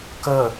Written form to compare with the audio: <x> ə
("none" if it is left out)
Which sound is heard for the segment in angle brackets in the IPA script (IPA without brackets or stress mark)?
k